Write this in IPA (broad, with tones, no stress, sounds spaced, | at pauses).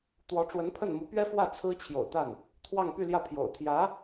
t̪ w ɔ˧˥ ʈ͡ʂ w ə˧˥ n pʰ ə˥˩ n m u˧˥ p ɥ ɛ˥ f w ä˥˩ t͡sʰ ɹ̩˥ t͡ɕʰ j o̰˨˩ ʊ̯ t̪ a˥˩ n | t̪ʰ w ɑ˥˧ ŋ p y˥˧ l j ä˥˩ pʰ j o̰˨˩ ʊ̯ t̪ʰ j ä˧˥